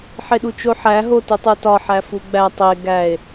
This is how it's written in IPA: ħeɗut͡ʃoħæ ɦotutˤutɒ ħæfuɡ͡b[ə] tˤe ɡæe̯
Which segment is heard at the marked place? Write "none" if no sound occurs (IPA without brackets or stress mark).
æ